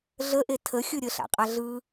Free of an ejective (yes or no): no